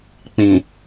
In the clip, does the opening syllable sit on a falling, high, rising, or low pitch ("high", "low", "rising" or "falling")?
low